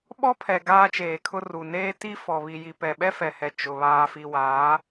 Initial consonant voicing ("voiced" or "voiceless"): voiced